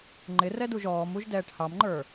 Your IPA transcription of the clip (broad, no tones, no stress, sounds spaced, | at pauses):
ŋ͡ǃ ɪ r ɛ d u ʒ ɔː m u ʒ d ɛː ʈ h ɑ m ŋ͡ǃ ə˞